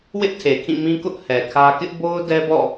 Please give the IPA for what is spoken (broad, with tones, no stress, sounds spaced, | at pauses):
w ɪ˦ ʔ tʰ e˨ kʰ ĩ˦˨ m ĩ˦ k ʊ˦ ʔ h ɛ˨ kʰ ä˦ k ɪ˦ ʔ b o˦ ʊ̯ d ɛ˦ b ɔ̰˦˨